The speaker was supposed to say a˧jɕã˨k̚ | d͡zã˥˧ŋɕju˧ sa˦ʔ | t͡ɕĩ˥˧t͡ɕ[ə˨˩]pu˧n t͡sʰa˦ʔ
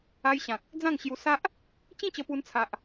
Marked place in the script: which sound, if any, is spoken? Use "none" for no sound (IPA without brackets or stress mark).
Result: ə˧